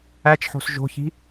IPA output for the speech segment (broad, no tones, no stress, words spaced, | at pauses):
æt͡ʃħo̤s ʒo̤çi̤